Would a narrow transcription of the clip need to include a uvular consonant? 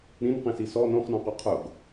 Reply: yes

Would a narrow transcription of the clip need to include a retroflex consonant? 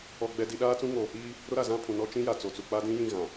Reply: no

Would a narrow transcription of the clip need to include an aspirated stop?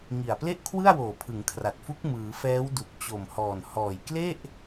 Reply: yes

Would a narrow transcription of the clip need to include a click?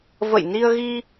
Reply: no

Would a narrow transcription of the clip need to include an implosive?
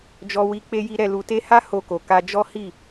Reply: no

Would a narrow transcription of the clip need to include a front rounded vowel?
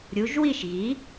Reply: no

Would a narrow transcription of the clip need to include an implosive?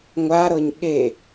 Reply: yes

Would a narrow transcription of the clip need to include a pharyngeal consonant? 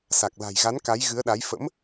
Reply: no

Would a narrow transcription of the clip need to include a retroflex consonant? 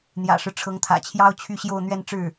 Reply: yes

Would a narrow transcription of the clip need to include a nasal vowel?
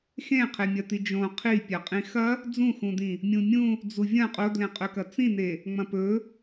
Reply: yes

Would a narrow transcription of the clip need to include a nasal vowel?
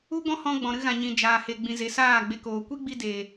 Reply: yes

